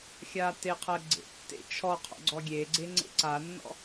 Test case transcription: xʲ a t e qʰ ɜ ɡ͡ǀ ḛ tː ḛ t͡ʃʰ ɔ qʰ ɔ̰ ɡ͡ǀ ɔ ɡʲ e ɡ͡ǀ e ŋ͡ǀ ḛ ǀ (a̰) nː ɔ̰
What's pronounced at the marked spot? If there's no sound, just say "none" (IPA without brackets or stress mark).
a